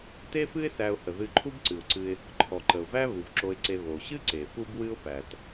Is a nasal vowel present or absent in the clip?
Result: absent